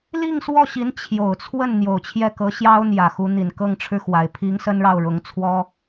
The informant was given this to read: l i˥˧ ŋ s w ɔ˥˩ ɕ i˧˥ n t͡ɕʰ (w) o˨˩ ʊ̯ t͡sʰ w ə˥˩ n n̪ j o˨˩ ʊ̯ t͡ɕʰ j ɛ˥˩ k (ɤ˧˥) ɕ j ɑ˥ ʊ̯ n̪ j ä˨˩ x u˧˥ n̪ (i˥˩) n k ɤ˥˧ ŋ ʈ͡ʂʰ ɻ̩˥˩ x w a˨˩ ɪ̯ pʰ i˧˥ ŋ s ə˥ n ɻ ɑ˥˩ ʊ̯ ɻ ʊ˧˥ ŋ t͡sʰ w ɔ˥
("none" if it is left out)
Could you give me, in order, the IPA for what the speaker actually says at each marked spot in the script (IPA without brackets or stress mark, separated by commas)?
j, ɤ˧˥, i˨˩